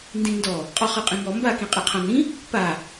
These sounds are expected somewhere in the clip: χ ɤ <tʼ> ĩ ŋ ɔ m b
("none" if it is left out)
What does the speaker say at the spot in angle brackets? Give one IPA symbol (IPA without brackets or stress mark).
qʼ